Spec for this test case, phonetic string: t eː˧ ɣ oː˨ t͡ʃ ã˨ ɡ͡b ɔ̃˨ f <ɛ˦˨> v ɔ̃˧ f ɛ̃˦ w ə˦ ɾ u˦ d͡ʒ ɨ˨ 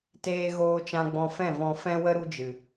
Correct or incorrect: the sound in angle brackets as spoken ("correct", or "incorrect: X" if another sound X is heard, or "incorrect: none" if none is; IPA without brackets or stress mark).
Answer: incorrect: ɛ̃˦˨